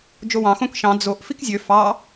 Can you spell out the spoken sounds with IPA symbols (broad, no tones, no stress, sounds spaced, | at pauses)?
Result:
d͡ʒ o w ɑ̃ x õ k ʃ ɑ̃ d͡z o ʔ f i k zʲ ø f ɑ